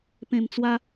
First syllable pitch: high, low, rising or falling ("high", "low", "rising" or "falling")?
low